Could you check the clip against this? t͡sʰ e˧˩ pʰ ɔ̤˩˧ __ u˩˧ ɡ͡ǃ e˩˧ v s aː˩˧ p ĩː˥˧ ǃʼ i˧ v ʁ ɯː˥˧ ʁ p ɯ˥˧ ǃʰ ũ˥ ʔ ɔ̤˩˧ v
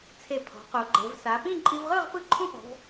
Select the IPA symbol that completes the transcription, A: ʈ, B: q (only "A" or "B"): B